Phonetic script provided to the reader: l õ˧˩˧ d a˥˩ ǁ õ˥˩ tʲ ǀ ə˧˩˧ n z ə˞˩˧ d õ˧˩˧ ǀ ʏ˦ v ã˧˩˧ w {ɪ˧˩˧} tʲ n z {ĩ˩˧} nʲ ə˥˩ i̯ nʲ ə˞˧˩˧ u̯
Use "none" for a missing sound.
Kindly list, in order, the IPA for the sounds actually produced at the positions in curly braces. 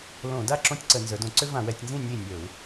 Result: ɛ˧˩˧, ĩ˥˩

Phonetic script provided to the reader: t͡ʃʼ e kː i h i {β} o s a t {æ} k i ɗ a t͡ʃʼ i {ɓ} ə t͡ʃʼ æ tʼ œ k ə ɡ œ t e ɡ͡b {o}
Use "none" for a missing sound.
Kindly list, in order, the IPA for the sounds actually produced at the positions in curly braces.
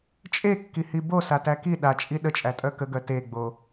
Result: b, æ, ɗ, o

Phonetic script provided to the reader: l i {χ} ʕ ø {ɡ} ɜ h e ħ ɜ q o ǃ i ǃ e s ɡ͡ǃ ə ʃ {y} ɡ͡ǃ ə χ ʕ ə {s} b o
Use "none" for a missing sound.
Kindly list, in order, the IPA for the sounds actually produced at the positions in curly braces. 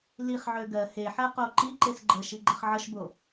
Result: χ, ɡ, i, ʃ

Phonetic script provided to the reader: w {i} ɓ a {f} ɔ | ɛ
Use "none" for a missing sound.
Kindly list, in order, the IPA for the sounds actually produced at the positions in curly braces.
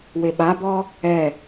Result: e, b

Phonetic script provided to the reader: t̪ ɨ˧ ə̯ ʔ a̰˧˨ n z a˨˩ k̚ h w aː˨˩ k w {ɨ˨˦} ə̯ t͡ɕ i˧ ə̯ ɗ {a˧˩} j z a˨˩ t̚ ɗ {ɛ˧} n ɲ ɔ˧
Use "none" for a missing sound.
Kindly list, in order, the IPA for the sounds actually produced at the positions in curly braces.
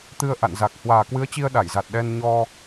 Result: ɨ˨˦, a˧˩, ɛ˧

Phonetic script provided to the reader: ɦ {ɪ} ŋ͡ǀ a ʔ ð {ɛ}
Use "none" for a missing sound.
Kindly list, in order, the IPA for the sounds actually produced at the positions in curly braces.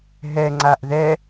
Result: ɛ, ɛ

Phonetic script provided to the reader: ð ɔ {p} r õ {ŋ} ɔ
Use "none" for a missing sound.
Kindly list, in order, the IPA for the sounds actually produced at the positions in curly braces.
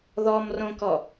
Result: m, k

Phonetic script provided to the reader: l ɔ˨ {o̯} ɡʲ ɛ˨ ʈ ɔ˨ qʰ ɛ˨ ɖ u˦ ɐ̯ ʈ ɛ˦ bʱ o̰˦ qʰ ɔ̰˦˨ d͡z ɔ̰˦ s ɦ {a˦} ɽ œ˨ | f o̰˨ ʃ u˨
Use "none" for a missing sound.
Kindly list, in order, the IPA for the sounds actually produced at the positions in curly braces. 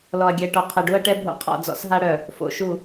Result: ɐ̯, a˦

